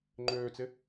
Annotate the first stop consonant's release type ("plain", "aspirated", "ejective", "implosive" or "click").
click